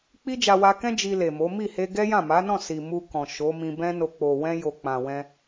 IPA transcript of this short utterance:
k͡p i˦ d͡ʒ a˧ w a˧ k ɛ̃˦ d͡ʒ i˧ l e˨ m o˨˦ m i˦˨ h e˧ ɡ ɛ˦ j ã˦˨ m a˨˦ n ɔ̃˦˨ s i˨ m u˧ k ɔ̃˨ ʃ o˨˦ m ĩ˧ b ɛ̃˦ n o˧ k͡p o˨ w ɛ̃˧ j o˨ k͡p ã˨ w ɛ̃˧

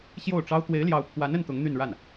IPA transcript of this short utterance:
ɕ j o˥˩ ʊ̯ ʈ͡ʂ ɑ˥ ʊ̯ t̪ w e˧˥ ɪ̯ l j ɑ˧˥ ʊ̯ pʰ w a˧˥ n ə˥ n t̪ ʊ˧˥ ŋ n̪ y˥˧ n ɻ a˥˩ n

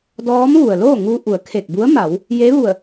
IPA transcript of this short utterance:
d ɔː˧˥ m ʋ u˩ ə̯ l oː˥˨ ŋ u˧ ʔ u˩˧ ə̯ kʰ e˧˩ k̚ b u˧˥ ə̯ m a˩˧ w | j e˧˥ ʋ u˧˩ ə̯

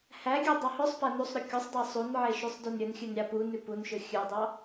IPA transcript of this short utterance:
h æ ɡʲ ʉ dˤ ɑ h ɵ sˤ p æ n u sˤ ɾ ʉ kʲ u sˤ dˤ e sˤ u n ʕ e ʃ ʉ sˤ d ø n ɾʲ ɵ n xʲ ʉ n ɾʲ ɑ p u n ʉ p u n ʃ ɵ xʲ ʉ dˤ ɑ

